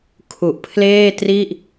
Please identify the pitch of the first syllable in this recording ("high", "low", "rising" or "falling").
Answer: low